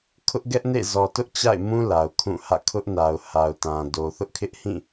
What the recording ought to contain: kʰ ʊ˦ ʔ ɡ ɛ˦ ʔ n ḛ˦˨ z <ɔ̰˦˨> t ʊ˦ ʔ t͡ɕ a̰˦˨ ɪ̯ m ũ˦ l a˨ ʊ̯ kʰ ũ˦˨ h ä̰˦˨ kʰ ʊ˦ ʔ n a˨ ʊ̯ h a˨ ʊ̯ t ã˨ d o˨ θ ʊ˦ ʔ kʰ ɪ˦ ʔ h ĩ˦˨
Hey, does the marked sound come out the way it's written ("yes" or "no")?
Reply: no